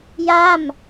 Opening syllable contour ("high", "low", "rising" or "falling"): falling